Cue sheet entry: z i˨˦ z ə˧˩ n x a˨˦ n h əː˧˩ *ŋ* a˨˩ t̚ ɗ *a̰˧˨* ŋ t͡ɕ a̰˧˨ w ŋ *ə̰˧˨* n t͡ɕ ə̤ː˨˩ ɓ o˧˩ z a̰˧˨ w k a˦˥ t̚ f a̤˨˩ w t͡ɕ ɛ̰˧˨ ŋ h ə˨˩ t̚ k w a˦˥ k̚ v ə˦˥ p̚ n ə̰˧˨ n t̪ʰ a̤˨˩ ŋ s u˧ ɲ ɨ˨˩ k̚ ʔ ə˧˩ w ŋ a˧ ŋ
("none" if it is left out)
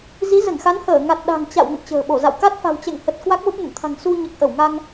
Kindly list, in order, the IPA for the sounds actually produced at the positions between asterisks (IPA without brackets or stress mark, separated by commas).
ŋ, a̤˨˩, ə̰˧˨